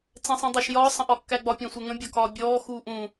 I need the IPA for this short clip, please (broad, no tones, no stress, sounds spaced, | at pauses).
t͡s ɛ̃ sˤ ĩ dˤ ɑ ʃ j ɒː sˤ ə̃ ʔ ɒ kː æ ɡ͡b ɒ pʲ ɛ̃ sʷ ɛ ŋ ə̃ bʲ ɒ k ɒː bʲ ɔː x uː ʔ ũ